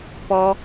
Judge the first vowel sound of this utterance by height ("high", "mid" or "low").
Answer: mid